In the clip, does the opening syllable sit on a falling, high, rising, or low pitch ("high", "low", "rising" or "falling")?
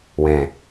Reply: low